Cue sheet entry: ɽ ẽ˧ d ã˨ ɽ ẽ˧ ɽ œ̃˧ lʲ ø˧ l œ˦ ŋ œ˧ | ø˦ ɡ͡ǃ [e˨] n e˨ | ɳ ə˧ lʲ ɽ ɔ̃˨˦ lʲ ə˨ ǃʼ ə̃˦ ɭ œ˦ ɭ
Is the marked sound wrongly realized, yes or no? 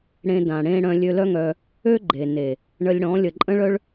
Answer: no